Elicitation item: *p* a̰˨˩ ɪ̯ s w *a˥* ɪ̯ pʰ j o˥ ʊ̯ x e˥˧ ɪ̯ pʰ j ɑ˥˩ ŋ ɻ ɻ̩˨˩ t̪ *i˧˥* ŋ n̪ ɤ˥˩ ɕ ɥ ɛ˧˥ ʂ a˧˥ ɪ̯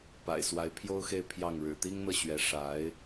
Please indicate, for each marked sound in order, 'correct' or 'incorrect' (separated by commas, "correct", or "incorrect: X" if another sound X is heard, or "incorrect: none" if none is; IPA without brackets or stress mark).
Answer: correct, incorrect: a˧˥, incorrect: i˥